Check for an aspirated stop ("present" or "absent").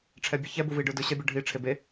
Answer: present